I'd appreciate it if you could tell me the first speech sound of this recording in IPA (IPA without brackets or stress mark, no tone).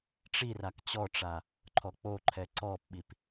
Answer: ʈ͡ʂ